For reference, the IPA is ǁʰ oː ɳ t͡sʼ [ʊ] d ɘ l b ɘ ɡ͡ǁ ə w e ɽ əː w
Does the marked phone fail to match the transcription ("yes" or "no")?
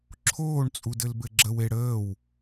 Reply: yes